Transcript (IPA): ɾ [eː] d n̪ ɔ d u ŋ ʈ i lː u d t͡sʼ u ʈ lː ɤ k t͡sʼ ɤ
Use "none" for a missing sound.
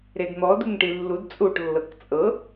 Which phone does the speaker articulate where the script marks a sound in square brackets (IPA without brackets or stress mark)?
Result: e